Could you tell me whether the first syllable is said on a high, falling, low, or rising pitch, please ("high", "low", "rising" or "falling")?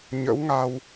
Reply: rising